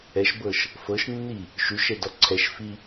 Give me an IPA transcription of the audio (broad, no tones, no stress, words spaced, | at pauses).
ɛʃbɤʃ | fɤʃnːi | ʃuʃɛdɔ ǀʰɛʃfi